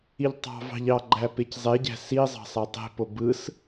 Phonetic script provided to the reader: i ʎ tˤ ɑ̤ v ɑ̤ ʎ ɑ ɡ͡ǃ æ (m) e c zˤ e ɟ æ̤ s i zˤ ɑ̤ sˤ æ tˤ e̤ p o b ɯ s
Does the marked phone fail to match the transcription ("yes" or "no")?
yes